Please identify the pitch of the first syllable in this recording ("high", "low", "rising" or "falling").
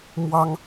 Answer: high